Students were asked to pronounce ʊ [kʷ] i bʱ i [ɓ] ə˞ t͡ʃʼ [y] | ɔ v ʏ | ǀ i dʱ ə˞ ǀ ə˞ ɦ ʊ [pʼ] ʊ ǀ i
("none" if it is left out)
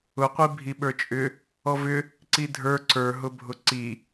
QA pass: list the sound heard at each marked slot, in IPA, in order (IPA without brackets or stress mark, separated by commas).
qʷ, ɓ, ʏ, bʱ